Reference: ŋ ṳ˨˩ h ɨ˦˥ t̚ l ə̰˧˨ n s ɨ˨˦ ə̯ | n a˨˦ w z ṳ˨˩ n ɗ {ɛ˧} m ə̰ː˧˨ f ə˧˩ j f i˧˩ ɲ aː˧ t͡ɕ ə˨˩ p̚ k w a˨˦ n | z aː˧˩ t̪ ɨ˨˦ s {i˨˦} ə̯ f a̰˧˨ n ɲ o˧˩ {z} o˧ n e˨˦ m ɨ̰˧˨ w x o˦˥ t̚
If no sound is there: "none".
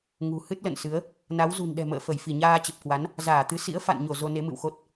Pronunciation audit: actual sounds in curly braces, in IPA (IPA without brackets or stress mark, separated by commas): ɛ̤˨˩, ḭ˧˥, z